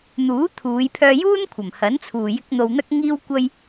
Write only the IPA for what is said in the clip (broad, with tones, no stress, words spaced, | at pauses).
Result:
n̪uː˨˥t̪ʰuː˨˧jpʰœː˧juː˥n kʷʰɐ˨˩mhɐ˨˥nt͡sʰuː˨ jɪ˧k̚ n̪o˧wn̪ɐ˥k̚ ŋiː˥wkʷɐ˥j